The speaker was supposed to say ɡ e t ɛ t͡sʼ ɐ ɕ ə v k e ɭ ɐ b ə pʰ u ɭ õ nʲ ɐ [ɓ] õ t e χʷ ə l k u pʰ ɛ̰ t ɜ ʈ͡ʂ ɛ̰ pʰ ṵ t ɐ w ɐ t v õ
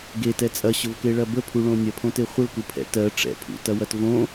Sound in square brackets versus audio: incorrect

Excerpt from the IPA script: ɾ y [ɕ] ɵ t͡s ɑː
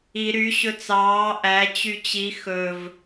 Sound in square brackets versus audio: correct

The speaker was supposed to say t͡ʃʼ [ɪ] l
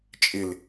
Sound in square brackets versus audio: correct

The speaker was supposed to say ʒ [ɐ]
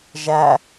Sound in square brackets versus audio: incorrect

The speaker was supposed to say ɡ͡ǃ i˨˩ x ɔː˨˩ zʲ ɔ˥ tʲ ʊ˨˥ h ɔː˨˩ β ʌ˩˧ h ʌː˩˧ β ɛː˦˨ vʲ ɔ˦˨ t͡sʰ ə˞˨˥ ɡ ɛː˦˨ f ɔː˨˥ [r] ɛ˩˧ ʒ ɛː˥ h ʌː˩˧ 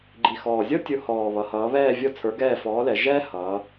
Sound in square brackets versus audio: incorrect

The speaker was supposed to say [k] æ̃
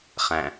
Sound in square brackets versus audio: incorrect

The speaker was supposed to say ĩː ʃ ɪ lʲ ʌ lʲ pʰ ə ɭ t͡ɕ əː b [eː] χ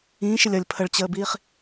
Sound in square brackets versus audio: incorrect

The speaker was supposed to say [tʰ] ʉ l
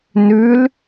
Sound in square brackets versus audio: incorrect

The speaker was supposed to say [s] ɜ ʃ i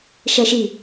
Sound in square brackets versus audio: incorrect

